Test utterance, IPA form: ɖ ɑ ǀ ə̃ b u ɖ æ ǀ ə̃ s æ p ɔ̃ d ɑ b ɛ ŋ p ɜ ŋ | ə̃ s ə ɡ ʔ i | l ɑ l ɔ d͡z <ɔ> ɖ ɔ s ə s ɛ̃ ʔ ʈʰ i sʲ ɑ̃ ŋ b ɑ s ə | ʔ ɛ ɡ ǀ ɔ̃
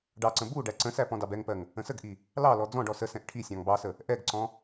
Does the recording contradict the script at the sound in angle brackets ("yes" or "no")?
yes